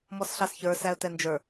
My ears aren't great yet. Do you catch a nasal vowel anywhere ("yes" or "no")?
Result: no